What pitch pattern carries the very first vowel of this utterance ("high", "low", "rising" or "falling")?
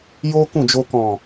high